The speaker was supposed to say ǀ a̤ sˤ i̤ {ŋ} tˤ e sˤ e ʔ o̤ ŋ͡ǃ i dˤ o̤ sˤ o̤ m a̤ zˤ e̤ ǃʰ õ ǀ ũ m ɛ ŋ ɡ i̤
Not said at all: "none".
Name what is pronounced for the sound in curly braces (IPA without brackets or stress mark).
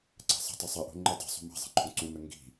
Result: none